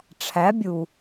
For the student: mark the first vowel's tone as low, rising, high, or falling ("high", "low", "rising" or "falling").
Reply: rising